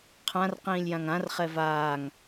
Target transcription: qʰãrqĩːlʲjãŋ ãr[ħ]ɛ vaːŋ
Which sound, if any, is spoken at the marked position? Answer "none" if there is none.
χ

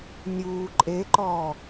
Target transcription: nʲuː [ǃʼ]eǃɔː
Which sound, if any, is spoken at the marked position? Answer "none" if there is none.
ǃʼ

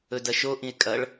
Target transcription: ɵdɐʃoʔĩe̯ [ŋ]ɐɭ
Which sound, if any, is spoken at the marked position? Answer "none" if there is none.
kʼ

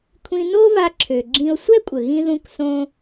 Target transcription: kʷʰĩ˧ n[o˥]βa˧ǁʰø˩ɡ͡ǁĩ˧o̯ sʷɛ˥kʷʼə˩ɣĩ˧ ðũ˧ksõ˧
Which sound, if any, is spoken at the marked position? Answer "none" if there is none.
o˥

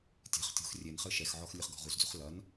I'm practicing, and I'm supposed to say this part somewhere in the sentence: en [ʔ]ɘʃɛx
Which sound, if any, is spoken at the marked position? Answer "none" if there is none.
χ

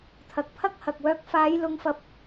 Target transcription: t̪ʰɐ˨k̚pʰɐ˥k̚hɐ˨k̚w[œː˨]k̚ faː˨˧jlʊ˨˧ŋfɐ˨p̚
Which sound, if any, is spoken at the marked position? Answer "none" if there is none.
œː˧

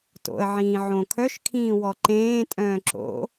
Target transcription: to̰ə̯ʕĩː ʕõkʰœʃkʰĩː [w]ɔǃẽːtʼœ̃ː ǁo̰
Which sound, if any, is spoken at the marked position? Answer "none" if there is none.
w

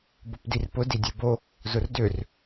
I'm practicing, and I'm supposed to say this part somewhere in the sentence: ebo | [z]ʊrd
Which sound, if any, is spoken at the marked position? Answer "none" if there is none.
z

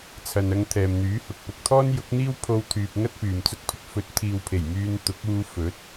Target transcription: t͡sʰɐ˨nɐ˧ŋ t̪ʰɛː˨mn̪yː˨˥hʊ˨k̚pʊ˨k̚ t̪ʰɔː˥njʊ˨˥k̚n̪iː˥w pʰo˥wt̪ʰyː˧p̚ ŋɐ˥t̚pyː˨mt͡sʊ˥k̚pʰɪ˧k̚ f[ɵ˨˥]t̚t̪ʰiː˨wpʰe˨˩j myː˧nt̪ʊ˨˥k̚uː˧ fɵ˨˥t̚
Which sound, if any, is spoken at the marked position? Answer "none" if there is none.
ɵ˨˥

